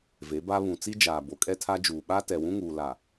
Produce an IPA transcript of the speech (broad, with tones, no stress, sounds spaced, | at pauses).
v e˨˦ b a˦ β ũ˨ t͡s i˦ d͡ʒ aː˨ b o˨ kʼ ɛ˦ tʰ a˦ d͡ʒ uː˨ ɓ a˦ t ɛ˨ w ũ˦ ŋ uː˨ l a˨